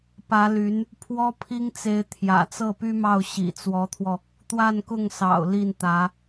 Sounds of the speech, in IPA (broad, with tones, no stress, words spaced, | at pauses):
pä˧˥ly˧˥n | pʰwɔ˥pʰi˥ŋt͡se˧˥ɪ̯ t̪ʰjä̰˨˩t͡sɤ˥˩py˥mɑ˥˩ʊ̯ ɕḭ˨˩t͡swɔ˧˥t̪ʰwɔ˧ | t̪wa˥˧nkʊ˥˩ŋsɑ̰˨˩ʊ̯ li˥˩nt̪ä˧˥